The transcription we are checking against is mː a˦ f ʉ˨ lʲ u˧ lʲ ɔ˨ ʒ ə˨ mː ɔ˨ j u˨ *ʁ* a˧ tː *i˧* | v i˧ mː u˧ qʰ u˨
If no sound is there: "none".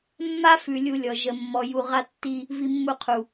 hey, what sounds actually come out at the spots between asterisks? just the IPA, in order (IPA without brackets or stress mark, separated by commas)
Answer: ʁ, i˧